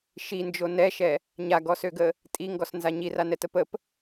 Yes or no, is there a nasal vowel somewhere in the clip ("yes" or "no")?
no